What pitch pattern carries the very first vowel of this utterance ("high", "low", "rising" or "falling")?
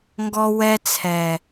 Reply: high